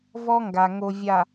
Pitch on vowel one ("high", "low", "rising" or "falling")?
high